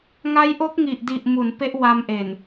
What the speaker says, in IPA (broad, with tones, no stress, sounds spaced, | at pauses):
ŋ a˦˥ j ʔ o˦˥ k̚ ŋ i˨˩ ʔ d i˨˩ ʔ m u˩˦ n p e˦˥ ʔ w a˧ m ʔ e˨˩ n